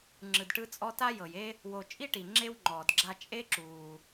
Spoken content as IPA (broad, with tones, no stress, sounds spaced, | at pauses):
ŋ͡ǁ ɯ˧ d ʈ ɯ˦ t͡sʼ ɔ˦ t a˦ j ɤ˨ j e˦ | w o˧ t͡ʃʼ i˦ ʈ i˨ ŋ͡ǁ e˦ w ŋ͡ǃ ɔː˨ d ɡ͡ǁ a˧ t͡ʃʼ e˦ ǁ uː˨